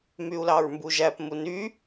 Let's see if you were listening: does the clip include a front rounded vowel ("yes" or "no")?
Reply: yes